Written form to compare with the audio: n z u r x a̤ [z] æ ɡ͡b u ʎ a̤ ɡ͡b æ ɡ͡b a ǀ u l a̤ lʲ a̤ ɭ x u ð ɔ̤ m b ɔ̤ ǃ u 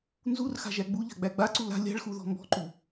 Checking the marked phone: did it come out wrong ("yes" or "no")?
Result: yes